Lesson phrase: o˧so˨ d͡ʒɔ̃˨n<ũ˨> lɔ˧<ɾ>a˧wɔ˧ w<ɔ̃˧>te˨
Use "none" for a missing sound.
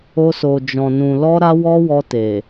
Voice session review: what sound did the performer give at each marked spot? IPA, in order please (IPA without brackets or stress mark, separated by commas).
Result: ũ˨, ɾ, ɔ˧